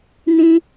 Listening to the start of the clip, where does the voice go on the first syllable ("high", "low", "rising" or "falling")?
high